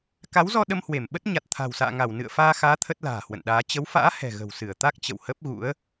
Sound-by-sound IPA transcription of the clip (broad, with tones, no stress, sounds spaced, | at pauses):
k a˨˦ w z ɔ˧ ɗ ə˧ m h w e˧˩ m ɓ ə˦˥ t̚ ɲ a˨˩ t̚ t̪ʰ a̤˨˩ w s a̰ː˧˨ ŋ a˧˩ w n ɨ̰˧˨ ə̯ f aː˧ x aː˨˦ t̪ʰ ə˦˥ t̚ l a̤ː˨˩ h w ə̰˧˨ n ɗ aː˨˦ t͡ɕ ə˨˦ w f a̰ː˧˥ h ɛ̤˨˩ ɣ ə̤˨˩ w s ɨ˧˩ ə̯ t̪ a˦˥ k̚ t͡ɕ ə̰˧˨ w h ə˦˥ p̚ ɣ ṵ˧˥ ə̯